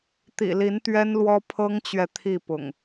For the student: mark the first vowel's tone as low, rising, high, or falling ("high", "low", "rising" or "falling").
low